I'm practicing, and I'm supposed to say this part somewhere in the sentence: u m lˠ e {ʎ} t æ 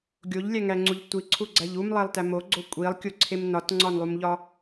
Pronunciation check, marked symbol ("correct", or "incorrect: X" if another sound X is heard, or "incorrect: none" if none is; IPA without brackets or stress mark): incorrect: lˠ